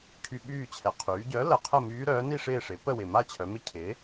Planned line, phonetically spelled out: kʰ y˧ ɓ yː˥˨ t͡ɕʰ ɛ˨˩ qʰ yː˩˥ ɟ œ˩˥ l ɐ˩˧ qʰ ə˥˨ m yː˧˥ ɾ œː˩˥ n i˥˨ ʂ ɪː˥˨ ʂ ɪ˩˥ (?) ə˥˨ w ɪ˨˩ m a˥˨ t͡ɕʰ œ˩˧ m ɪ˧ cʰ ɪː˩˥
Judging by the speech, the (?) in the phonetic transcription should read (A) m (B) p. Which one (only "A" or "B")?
B